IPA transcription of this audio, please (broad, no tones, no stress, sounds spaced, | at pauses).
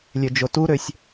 lʲ ø d͡ʒ o t u ɾ ø sʲ